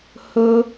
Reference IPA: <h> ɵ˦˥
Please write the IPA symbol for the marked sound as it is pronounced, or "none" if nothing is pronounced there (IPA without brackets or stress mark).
h